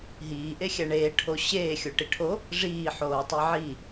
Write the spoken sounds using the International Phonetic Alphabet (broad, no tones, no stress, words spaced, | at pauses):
ɦiːʔexʲæ ɳeːʈʰo ɕeːxʲoʈi ʈʰo | ʐiːħoːtˤi ʕi